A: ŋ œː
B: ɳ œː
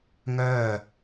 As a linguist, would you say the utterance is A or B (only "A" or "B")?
A